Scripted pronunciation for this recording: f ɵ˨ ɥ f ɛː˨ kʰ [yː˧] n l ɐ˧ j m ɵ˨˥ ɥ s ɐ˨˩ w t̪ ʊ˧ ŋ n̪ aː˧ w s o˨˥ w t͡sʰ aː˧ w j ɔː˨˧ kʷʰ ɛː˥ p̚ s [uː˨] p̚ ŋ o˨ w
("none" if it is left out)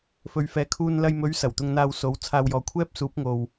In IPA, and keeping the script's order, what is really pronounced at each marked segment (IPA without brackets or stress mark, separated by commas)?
uː˧, uː˨˥